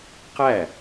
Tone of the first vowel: falling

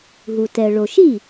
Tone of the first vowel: low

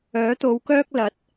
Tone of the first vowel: rising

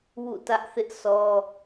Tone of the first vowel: falling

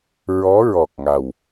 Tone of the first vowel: rising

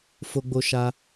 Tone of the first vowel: low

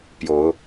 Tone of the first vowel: rising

